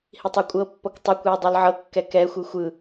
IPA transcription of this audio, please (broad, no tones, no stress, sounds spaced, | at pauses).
h i tˤ a kʷʼ ɤ pː ɔ kʷ tˤ ɤ kʷ j ɔ dˤ i l ʕ ɤ kː ɛ k ɛ xʷ ɯ xʷ ɯ